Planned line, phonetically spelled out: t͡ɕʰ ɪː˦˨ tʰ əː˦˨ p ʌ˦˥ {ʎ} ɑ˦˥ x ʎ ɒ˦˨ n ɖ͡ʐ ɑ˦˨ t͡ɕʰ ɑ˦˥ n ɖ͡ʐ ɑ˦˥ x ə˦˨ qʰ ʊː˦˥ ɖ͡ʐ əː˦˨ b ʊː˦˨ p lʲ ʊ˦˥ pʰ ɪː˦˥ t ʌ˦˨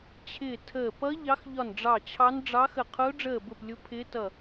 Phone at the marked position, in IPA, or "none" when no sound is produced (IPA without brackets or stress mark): ʎ